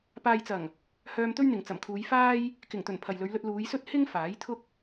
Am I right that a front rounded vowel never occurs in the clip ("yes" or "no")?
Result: no